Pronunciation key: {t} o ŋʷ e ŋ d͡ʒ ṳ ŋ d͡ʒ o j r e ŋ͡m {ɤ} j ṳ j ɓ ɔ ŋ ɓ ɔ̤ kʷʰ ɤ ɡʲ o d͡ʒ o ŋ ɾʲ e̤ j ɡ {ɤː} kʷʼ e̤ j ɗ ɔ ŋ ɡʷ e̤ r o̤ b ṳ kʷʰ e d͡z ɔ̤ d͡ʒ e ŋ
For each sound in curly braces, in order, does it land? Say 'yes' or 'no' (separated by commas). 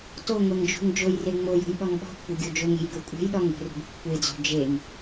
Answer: yes, no, no